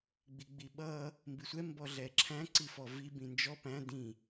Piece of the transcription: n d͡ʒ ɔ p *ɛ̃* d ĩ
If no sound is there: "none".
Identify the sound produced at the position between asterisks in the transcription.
æ̃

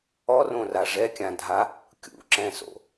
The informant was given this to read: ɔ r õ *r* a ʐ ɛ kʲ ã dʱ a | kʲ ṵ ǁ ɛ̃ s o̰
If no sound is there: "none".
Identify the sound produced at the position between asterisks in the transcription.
r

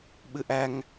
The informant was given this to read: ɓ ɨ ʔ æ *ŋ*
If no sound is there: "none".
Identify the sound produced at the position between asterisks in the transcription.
ŋ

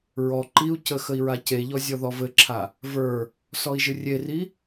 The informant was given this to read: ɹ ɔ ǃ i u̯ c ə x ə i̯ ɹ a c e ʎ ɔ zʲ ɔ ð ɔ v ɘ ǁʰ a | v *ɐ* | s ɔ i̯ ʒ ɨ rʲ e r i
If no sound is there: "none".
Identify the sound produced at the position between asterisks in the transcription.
ə˞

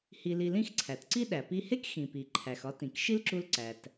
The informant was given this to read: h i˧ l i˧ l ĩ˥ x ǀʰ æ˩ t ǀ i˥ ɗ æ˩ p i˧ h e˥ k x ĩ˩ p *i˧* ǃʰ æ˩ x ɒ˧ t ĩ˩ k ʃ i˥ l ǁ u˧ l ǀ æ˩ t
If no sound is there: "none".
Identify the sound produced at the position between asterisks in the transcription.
i˩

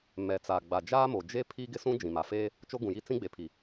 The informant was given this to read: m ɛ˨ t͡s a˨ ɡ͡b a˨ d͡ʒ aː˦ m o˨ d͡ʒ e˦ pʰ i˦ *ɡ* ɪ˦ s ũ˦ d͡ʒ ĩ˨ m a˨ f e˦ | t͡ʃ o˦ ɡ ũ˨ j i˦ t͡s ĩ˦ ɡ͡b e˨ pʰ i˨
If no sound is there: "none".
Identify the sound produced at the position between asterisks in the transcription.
ɡ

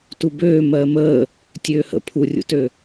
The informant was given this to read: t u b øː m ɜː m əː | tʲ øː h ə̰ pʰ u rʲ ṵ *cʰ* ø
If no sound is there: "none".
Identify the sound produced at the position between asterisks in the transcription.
t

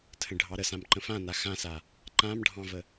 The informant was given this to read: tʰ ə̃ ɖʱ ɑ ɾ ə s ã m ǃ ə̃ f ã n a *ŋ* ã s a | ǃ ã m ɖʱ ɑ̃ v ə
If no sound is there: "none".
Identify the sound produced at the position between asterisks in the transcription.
x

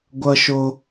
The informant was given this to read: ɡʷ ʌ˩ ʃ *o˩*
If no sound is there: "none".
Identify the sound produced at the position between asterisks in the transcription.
o˩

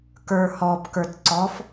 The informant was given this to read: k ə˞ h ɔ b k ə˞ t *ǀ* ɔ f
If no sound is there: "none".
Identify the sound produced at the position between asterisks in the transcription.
ǀ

